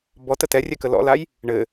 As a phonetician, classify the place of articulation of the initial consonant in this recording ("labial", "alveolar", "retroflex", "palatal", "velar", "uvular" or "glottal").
labial